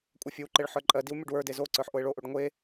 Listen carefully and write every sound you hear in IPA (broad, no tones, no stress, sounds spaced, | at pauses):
kʷʼ ɜ fʲ ɯ w ǃ e ɭ ħ ə˞ ǃʼ ɜ d i w mʲ o ɖ w ə˞ d e z o ǀ ə˞ ħ ʔ o ɪ̯ ɭ o ʔ o ɖ ŋʷ e